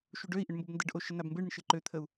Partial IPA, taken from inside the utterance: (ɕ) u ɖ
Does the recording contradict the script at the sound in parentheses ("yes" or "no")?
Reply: yes